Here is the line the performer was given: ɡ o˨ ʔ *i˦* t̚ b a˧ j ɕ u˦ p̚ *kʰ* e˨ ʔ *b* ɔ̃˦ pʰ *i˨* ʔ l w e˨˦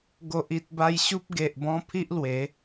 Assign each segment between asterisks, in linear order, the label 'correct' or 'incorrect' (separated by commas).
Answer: incorrect, incorrect, correct, incorrect